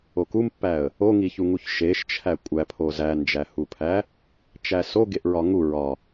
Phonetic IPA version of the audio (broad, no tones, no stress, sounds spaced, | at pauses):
o k u m pː æ ə̯ | o ŋ i ç u ŋ u ç ʃ e ʃ t͡ʃʰ æ kʷʼ æ pʰ o z æ n d͡ʒ æ h u pʰ æ | t͡ʃ æ s o ɡ e ʔ ɹ ɒ ŋ u ɹ ɒ